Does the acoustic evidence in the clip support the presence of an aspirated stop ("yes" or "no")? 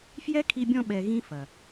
yes